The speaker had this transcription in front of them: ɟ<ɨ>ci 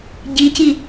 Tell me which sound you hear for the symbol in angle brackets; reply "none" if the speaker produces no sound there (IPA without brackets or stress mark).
i